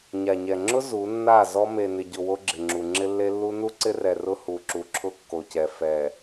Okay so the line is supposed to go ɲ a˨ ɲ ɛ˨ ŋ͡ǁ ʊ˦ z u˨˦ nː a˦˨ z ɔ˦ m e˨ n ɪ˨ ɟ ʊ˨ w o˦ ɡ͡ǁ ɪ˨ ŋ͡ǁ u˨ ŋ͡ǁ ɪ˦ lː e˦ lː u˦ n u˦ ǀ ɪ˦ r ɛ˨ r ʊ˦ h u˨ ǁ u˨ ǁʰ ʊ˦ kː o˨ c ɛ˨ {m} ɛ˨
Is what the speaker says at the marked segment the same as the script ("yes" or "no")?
no